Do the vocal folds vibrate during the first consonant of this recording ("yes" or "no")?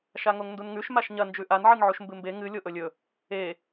no